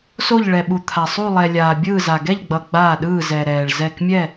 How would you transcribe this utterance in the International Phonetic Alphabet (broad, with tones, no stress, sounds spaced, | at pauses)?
s o˦˨ ʎ ɭ ɛ˨ ɓ u˨ t̪ʰ a˨ sˤ u˦˨ lˠ ɛ˨ lʲ aː˨ bʲ ɯː˦˨ z a˨ ɡ ɛ˦˨ ʎ ɡ͡b ʌ˨ ɡ͡b aː˦˨ ɗ ɯː˦˨ z ɛ˨ ɾ ɛː˨ ɭ z ɛ˦˨ k mʲ ɛ˦˨